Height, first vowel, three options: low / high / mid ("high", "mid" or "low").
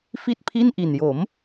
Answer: high